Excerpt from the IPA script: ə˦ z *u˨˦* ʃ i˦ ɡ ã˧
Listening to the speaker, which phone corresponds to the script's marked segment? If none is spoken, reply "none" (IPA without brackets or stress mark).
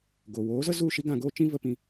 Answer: u˦˨